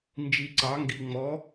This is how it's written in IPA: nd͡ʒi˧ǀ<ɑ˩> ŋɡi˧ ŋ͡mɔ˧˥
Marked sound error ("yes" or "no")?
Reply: yes